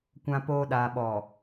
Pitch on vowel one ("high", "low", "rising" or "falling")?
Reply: low